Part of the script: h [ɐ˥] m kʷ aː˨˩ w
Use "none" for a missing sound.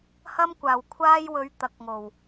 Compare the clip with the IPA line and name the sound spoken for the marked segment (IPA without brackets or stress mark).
ɐ˥